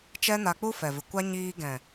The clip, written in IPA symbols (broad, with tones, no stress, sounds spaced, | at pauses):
t͡ʃ ɛ˦ n a˧ k͡p u˦ f ɛ˨ v ɨ˨ kʷ a˦ ɲ iː˧ ɡ ɛ̃˨